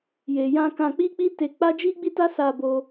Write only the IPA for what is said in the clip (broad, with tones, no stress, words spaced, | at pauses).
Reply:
je˨jã˧ kã˧k͡pi˦k͡pi˦ te˧k͡pa˦ d͡ʒi˦ɡ͡bi˦ta˦ sa˧bo˧